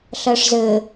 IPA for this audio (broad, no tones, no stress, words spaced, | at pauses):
ɬɜʂzɘ